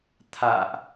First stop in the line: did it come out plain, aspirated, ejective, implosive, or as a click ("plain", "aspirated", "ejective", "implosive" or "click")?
aspirated